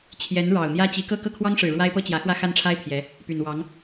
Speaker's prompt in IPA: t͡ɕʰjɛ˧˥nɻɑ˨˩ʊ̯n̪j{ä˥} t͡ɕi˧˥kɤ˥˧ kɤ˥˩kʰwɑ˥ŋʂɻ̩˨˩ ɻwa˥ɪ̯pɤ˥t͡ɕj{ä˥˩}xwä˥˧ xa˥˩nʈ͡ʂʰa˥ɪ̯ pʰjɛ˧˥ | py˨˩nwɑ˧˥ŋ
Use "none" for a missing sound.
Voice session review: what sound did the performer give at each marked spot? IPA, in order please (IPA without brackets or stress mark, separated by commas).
ä˥, ä˧˥